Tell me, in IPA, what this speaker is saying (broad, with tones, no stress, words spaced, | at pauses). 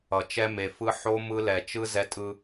ʌ˨ t͡ʃɛ˦me˨fɯ˦ ħo˦ mɯ˦lɛ˨ t͡ʃɯ˦ zɛ˦tʼɯ˦